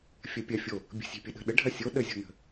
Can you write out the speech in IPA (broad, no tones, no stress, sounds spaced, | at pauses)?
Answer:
fʲ ɐ pʲ ɐ fʲ o | bʲ ə̤ sʲ e̤ pʲ ə ɗ ə̤ ɗ ə ɖʱ ɐ sʲ o ɗ ə zʲ o̤ n ə̤